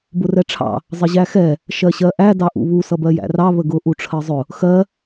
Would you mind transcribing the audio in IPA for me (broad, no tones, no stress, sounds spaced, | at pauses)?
b ʊ r ɛ ʈ͡ʂʰ ɑ̰ | zˤ ə ʑ æ x ɛ | ʃ ɜ ɕ ɜ ʔ æ d ɑ ʔ ṵ β u s ʌ b ɜ j æ̰ r ɑ β ə ɡ ʊ ʔ u ʈ͡ʂʰ ɜ zˤ ʊ | x ɜ